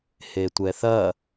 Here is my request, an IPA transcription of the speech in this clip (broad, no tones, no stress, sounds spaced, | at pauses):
h e tʷ ɛ θ ɐ